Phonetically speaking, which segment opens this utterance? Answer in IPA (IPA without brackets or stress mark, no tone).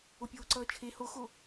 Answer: o